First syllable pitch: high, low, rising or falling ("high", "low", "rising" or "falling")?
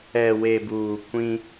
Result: low